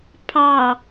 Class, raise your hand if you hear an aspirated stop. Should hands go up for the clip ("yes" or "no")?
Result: yes